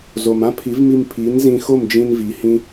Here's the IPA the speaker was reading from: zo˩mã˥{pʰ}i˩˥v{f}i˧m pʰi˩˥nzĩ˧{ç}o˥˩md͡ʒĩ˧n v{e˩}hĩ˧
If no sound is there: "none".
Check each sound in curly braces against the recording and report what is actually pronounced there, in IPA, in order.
pʰ, m, x, i˩

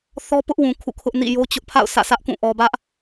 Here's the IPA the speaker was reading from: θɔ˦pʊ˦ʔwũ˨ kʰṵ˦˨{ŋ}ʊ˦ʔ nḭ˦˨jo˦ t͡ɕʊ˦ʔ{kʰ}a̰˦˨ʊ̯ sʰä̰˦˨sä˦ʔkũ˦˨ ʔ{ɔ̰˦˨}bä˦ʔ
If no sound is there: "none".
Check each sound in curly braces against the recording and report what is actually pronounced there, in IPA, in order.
kʰ, pʰ, ɔ˨

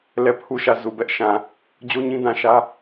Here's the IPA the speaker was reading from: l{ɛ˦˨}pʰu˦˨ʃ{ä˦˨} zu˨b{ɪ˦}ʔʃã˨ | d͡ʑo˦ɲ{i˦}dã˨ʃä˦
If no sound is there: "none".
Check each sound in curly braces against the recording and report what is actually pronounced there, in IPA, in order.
ɛ˦˨, ä˦˨, ɛ˦, ĩ˦

